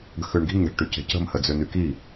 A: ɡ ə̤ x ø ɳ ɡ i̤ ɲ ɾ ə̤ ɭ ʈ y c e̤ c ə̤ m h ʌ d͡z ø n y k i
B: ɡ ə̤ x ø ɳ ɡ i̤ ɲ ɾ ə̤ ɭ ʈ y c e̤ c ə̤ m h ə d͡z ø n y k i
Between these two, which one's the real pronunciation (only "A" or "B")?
B